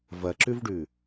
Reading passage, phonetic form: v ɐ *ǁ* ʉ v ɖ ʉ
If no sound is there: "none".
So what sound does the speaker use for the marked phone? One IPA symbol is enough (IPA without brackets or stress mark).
ǁ